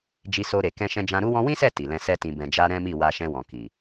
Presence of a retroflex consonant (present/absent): absent